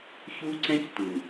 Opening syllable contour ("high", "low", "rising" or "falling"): high